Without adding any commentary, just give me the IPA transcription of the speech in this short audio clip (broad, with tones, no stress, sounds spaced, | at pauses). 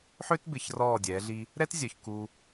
ħ ø˦ t b ɪ˨ ç r ɔː˦˨ dʲ ɛː˨˦ ɮ i˦ | ɾ ɛ˦ t zʲ œ˨ ç k u˦